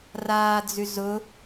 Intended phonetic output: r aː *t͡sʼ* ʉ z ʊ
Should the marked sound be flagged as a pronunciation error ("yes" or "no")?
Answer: yes